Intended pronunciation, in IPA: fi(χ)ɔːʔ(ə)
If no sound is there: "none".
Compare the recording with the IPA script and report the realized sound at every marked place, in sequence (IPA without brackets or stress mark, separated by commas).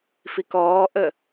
k, ə